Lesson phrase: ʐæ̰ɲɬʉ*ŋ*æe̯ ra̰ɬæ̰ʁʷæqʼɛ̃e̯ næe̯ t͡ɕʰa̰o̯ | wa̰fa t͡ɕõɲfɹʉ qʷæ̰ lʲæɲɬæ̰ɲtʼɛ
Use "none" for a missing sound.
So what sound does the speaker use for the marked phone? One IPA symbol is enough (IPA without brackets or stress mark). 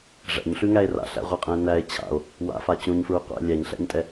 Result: ŋ